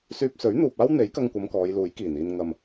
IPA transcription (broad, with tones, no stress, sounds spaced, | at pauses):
s yː˧ p̚ s ɵ˨˥ ɥ n̪ uː˨ p̚ aː˥ w n̪ e˨˥ j k ɐ˧ ŋ kʷ ɐ˨˧ m k ɔː˨˧ j l uː˨˥ j k iː˨˩ n iː˧ n ŋ ɐ˨ m